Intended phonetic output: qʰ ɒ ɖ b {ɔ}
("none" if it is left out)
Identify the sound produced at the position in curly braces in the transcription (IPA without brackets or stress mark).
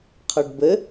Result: ə